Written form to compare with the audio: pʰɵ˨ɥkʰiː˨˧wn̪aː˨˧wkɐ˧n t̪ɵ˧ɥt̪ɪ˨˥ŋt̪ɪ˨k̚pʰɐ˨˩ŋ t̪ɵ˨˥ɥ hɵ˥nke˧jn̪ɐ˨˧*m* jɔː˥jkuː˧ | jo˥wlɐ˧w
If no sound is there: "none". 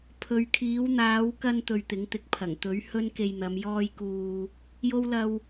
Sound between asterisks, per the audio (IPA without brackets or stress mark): m